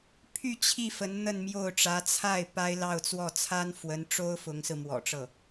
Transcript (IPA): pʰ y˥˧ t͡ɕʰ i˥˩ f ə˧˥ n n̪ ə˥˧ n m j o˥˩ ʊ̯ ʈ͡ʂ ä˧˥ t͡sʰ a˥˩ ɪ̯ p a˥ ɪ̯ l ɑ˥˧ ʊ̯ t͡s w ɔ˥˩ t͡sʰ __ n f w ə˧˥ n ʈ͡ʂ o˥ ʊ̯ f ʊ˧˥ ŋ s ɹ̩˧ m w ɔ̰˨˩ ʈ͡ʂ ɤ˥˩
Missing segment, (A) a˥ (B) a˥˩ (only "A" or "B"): A